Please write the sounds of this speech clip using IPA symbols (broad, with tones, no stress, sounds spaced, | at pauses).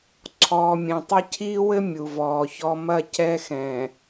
ǀʰ ɔː˨ mʲ ẽ˨ tˤ ɐ˦ cʰ iː˦ w ɘ˦ mʲ u˨ v ɔː˨ ç ɔ˦ m ɐ˦˨ c ɛ˦ x ɛ̃˨